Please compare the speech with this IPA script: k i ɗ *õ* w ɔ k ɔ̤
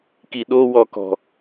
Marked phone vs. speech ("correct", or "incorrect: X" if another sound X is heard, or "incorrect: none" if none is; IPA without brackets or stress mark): incorrect: o